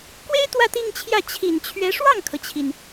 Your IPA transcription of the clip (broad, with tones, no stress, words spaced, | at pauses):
kwe˥ɪ̯ t̪wä˥˧t̪i˥˧ŋt͡ɕʰjä˥˩ t͡ɕʰi˨˩nt͡ɕʰɥɛ˧˥ ʂwɑ˥˩ŋkʰɤ˩t͡ɕʰi˩n